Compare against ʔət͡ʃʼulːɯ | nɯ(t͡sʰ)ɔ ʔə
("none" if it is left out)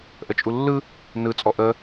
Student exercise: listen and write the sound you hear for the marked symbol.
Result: t͡sʼ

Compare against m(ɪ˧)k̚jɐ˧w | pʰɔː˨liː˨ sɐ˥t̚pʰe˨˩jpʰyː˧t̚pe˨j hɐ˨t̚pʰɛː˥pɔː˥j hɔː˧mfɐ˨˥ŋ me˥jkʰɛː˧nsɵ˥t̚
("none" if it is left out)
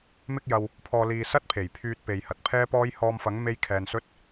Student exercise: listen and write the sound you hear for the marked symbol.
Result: ɪ˥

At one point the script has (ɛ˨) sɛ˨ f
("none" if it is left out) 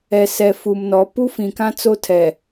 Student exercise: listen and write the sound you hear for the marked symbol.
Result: ɛ˨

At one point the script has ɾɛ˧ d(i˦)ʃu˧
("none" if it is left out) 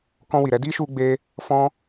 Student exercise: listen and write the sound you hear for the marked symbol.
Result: i˦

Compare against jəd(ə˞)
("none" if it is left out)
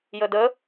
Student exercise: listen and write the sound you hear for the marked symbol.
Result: ə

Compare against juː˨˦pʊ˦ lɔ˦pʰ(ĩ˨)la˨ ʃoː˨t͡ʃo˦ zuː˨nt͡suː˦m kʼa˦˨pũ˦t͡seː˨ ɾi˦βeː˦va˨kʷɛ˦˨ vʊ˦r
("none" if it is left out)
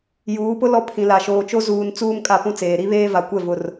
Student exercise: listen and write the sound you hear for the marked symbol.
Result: ĩ˨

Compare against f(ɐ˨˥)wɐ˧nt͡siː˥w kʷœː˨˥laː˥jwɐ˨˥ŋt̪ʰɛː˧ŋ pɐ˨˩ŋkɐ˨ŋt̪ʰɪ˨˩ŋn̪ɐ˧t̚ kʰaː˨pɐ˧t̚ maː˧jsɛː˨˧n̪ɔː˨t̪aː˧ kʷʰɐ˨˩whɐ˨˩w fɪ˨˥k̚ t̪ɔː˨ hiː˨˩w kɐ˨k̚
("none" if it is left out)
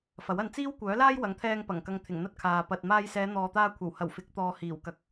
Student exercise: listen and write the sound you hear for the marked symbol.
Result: ɐ˨˥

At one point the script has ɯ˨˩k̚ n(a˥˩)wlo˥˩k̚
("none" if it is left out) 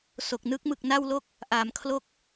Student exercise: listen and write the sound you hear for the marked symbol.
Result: a˥˩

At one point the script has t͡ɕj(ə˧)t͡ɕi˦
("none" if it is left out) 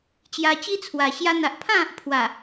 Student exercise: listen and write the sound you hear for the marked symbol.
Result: a˧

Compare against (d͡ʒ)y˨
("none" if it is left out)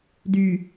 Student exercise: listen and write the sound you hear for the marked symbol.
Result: d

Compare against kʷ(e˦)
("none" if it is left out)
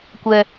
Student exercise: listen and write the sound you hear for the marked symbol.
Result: ɛ˦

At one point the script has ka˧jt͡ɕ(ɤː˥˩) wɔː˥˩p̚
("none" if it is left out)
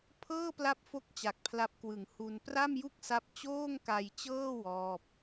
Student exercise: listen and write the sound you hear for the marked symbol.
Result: ɤː˥˩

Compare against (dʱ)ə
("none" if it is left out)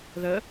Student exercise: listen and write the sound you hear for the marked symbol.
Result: ð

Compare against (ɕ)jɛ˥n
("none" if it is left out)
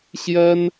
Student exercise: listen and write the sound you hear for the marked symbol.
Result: ɕ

